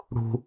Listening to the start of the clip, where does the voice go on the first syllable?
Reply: low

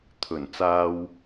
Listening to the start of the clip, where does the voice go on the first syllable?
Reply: low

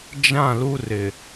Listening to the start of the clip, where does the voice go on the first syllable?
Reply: falling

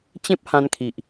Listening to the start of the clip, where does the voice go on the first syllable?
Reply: high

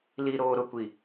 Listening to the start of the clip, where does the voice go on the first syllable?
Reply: low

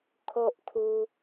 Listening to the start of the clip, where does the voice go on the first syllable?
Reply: high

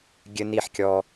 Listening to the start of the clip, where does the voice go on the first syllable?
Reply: high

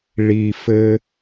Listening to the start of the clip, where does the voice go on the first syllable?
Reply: low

